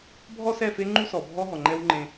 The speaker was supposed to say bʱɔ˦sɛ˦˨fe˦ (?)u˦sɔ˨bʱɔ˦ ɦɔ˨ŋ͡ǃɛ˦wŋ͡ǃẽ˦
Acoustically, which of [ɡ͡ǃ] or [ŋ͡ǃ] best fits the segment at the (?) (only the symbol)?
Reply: ŋ͡ǃ